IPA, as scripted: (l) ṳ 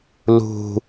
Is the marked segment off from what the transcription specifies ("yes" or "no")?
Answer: no